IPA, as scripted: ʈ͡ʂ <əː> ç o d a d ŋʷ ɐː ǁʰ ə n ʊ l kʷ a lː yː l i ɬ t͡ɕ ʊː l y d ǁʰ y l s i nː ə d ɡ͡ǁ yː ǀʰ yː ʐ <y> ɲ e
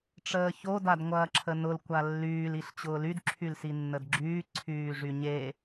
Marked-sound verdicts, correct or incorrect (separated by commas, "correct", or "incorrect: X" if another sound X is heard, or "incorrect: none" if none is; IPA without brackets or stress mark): correct, correct